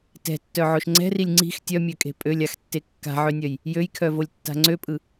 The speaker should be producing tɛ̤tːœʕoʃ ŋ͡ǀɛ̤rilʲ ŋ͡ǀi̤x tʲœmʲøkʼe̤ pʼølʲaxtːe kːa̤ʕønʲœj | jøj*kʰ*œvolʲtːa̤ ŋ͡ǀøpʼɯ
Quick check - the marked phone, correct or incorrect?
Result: correct